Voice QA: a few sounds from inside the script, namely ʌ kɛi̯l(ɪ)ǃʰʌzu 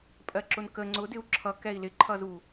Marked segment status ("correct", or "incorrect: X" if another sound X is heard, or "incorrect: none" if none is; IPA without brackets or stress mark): correct